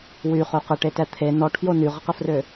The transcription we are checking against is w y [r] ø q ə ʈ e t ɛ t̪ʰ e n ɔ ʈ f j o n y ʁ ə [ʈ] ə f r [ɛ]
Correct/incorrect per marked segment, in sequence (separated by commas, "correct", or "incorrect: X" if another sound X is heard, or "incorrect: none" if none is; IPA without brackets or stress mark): incorrect: χ, incorrect: q, incorrect: ø